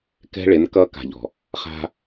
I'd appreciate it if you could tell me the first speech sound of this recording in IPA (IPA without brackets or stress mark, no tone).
k